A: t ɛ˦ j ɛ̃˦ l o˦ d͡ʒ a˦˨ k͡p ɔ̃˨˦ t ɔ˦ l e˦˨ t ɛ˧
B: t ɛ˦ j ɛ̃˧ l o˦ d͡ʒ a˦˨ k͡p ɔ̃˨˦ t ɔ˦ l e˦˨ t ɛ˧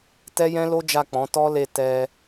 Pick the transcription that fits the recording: A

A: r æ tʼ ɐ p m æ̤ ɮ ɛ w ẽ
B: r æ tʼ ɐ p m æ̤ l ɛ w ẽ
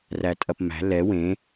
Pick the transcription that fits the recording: B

